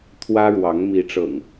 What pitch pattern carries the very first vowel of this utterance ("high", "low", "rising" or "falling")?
high